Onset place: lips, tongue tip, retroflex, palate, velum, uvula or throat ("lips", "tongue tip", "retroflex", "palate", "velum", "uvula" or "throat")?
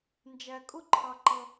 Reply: tongue tip